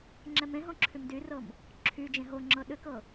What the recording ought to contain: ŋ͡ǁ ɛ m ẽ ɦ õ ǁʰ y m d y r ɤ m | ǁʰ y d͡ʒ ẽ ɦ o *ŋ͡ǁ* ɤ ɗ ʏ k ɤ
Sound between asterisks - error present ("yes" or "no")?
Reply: no